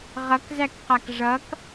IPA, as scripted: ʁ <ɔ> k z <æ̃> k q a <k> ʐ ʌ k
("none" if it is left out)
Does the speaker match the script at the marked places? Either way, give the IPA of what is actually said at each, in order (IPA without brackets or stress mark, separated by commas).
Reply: ʌ, æ, k